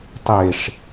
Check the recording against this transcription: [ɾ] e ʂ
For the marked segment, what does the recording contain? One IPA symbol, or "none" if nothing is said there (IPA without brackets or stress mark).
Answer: tˤ